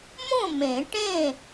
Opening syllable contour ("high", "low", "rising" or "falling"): falling